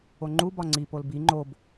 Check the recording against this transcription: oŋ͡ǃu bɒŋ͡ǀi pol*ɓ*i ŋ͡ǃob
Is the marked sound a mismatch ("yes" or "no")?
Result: yes